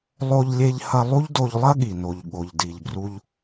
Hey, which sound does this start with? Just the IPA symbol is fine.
lˠ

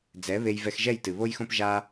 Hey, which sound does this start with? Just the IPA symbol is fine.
d͡z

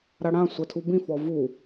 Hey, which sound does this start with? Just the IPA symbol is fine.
ɾ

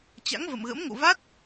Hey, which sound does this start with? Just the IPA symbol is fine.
t͡ɕ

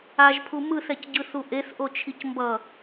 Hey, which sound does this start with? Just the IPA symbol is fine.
a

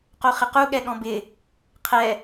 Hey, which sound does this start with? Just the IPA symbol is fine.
q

